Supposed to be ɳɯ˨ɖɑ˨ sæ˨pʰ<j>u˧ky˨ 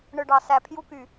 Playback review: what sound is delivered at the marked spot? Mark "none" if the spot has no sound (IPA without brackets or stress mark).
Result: j